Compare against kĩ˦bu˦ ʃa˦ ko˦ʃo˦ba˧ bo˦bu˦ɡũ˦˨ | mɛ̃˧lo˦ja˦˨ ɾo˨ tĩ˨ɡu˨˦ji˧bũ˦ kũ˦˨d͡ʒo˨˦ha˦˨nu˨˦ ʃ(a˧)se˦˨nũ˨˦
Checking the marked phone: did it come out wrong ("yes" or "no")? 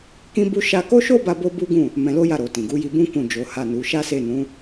yes